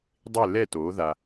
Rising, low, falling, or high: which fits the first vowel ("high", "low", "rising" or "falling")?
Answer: falling